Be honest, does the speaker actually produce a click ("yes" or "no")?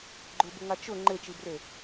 yes